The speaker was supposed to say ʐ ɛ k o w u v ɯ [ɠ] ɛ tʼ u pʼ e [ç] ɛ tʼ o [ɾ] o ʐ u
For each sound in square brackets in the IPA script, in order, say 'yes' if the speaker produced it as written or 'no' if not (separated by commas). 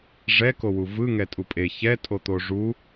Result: no, yes, no